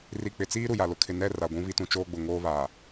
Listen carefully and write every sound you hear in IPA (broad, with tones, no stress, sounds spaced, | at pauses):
r i˨ k͡p ɪ˨ t͡s iː˦ ɾ u˨ j a˨ l ʊ˦ kʰ ɪ˨ n ɛ˦˨ r a˨ ɡʷ ũ˦ β i˦ t ũ˦ t͡ʃ oː˦ ɡ͡b ʊ˨ ŋ oː˦ β aː˨